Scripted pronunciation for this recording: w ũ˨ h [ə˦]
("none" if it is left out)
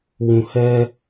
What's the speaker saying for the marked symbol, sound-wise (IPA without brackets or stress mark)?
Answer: ɛ˦